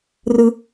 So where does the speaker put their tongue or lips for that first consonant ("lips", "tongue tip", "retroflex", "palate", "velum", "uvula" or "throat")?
tongue tip